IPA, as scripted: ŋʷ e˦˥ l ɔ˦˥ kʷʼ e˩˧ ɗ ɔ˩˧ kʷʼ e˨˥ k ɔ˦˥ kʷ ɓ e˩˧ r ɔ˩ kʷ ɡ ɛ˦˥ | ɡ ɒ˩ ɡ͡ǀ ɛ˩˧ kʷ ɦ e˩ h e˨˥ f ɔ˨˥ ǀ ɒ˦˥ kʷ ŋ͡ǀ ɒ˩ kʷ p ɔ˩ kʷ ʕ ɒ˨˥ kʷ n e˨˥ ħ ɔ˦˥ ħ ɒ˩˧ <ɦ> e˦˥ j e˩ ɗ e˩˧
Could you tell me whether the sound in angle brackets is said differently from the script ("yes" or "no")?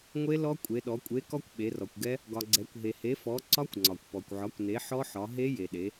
no